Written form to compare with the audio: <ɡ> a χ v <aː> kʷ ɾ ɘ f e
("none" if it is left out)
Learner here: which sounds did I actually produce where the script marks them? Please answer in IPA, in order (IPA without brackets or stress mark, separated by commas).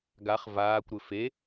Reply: ɡ, aː